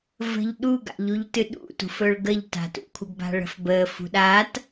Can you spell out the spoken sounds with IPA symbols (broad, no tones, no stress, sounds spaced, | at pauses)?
v ə̤ ʎ ɗ u ɡ a̰ ʎ u ʎ t ɨ ɗ ṵ t ṳ f ɵ ɭ ɡ ə ʎ t a̤ t ṵ kʷʰ ə ɡ b a̤ ɭ ə̤ f b əː f ṳ ɗ a t